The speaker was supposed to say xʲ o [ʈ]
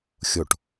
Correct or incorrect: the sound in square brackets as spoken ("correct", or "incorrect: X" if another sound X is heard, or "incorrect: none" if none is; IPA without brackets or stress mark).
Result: correct